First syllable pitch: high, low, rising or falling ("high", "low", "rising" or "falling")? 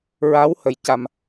rising